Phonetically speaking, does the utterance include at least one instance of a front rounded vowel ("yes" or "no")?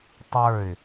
no